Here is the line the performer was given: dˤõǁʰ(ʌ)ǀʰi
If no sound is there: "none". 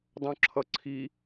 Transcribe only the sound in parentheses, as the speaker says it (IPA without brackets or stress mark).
ʌ